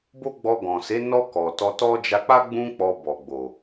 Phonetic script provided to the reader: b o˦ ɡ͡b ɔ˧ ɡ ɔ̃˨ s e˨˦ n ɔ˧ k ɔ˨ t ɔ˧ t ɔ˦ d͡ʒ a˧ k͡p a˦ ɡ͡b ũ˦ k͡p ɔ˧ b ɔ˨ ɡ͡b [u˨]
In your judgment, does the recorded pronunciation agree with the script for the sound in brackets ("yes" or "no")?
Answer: no